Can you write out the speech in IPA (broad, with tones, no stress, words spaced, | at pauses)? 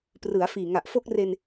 prɯ˩˦a̯ fiː˨˩ŋa˨˩ʔfo˦˥k̚re˧n